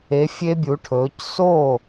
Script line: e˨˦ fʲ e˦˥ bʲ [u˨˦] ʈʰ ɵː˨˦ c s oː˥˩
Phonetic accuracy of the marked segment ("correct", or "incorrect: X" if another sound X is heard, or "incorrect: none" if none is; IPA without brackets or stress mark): correct